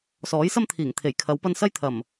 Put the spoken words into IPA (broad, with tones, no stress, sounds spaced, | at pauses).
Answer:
s ɔː˨˥ j s ɐ˥ m t̪ʰ iː˨˩ ŋ t̪ʰ e˨˩ j kʰ ɐ˨˧ w p ɐ˧ n s ɐ˥ j t̪ʰ ɐ˨˩ m